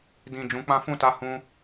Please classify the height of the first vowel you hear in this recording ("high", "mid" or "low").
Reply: high